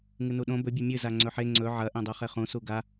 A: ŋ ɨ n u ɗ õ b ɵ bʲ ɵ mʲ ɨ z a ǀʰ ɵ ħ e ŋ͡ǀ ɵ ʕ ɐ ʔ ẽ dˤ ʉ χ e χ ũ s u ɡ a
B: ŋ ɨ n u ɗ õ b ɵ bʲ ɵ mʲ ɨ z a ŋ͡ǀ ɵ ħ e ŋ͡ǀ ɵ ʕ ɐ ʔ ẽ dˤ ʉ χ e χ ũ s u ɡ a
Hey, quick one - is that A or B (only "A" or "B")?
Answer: B